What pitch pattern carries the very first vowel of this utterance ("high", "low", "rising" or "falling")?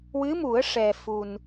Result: rising